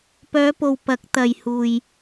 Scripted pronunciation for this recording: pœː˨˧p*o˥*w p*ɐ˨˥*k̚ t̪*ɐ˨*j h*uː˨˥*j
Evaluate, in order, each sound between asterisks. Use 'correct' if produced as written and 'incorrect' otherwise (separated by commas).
incorrect, correct, correct, incorrect